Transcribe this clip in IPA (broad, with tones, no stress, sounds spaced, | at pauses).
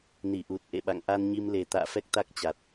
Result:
n i˧˩ ʔ u˨˩ t̚ ʔ ḛ˧˨ ɓ a̰˧˨ ŋ ʔ a˧ n ɲ i˧ m l e˨˩ t̪ a̰ː˧˨ f ɛ˦˥ k̚ t̪ a˦˥ k̚ t͡ɕ a˨˩ t̚